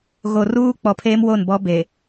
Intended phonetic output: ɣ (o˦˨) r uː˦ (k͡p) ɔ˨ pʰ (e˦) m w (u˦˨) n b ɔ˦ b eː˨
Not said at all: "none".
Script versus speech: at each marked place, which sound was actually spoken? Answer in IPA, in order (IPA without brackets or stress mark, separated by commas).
o˨, k͡p, eː˦, o˦˨